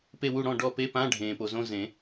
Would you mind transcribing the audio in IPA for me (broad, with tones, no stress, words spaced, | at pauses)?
pe˦˨wu˦˨ ɽɔ̃˦˨ɖɔ˦˨ pe˧˥˧pã˧˥˧ ɖʱẽː˩po˩zõ˧˥˧ zẽ˨˩˦